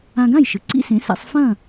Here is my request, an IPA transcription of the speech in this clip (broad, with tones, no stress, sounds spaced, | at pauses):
ã˧ ɡ ã˥˩ j ʃ ɨ˩ ǀ ḭ˥ s ẽ˩˥ s ɛ̰˧ sˤ f ɐ̃˥˩